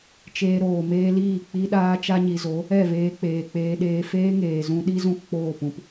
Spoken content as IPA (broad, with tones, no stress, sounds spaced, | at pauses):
t͡ʃ eː˧ ɾ oː˨ m eː˦ l iː˦˨ k͡p i˦ ɗ aː˦ t͡ʃ a˦ ɲ i˨ z o˨˦ | ɛ˦˨ v eː˧ k͡p eː˨ k͡p eː˧ ɗ eː˧ f eː˦ ŋ eː˨ z ũ˧ ɗ i˦ z ũ˦ k k͡p oː˦˨ p ũ˨ p